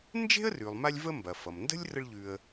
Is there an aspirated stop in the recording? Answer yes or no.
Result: no